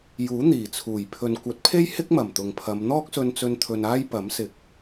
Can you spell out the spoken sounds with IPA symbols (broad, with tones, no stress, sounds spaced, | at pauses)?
j uː˨˥ n̪ iː˨˩ t͡sʰ uː˨˩ j pʰ ɵ˨ n kʷ ɐ˨˥ t̚ pʰ e˥ j h ɪ˥ k̚ m ɐ˨˩ m t̪ ʊ˨ ŋ pʰ ɐ˨˧ m n̪ ɔː˥ k̚ s ɵ˧ n t͡s ɵ˧ n t̪ʰ ɵ˧ n aː˥ j p ɐ˨˥ m s ɪ˨˥ k̚